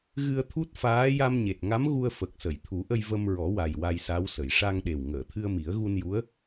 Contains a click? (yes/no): no